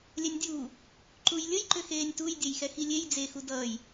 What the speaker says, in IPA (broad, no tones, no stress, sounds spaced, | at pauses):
lʲ ɛ nʲ dʲ uː | ǃ u j lʲ ə j ǃ ʏ x eː nʲ t u j dʲ ɛ j x ɛ x i lʲ e j d͡z e x u d ʌː j